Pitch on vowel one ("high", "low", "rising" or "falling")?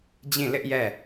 falling